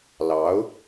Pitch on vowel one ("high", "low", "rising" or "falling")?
rising